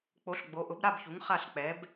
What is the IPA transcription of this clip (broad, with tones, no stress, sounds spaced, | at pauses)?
k͡p o˩˥ ɬ ɡ͡b o˩˥ ʔ ʊ˩˥ b ɾ a˥˩ b ç u˩˥ ŋ χ a˥˩ ɬ k͡p ɛ˩˥ b